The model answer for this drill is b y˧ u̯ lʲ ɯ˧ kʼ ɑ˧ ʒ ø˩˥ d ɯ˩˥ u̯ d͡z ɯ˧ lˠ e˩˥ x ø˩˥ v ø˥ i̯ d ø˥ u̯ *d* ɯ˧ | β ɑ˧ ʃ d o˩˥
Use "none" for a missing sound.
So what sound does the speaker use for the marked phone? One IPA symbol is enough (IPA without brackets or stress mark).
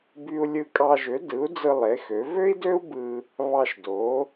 b